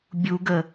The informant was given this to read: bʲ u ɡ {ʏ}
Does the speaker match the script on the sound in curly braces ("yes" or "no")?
no